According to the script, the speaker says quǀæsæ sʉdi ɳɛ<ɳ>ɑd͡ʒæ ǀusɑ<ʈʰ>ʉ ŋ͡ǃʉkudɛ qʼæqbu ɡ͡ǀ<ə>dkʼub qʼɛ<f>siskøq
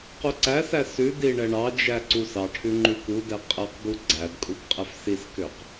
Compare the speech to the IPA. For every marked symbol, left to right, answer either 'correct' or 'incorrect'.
correct, correct, incorrect: æ, correct

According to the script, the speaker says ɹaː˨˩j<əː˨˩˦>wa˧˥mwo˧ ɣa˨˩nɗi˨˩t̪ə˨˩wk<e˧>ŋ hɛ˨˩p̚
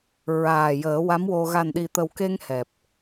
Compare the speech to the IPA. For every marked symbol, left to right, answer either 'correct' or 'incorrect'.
correct, correct

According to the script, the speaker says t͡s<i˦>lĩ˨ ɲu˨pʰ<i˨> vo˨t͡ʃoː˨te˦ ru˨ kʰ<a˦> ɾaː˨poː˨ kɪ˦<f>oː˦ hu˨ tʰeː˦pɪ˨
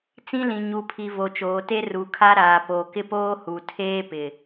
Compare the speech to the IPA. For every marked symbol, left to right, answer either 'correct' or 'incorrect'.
incorrect: ĩ˦, correct, correct, incorrect: p

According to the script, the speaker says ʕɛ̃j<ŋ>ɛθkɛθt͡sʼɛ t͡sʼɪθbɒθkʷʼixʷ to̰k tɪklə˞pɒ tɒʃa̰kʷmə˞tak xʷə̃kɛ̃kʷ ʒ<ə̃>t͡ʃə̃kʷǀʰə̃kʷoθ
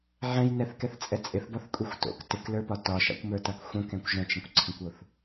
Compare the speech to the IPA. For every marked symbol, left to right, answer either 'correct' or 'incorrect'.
incorrect: n, correct

